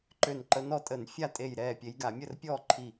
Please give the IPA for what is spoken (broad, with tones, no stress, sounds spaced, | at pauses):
ǃ ø˧˩ n ǃ ə˨˦ n ɔ˨˦ tʼ ə˧˩˧ n fʲ a˥˩ tʼ e˧˩ j ɾ ɛː˧˩ pʲ e˨˦ j ɡ a˧˩˧ mʲ ə˥˩ r pʲ ɔː˥˩ ǃʰ i˧˩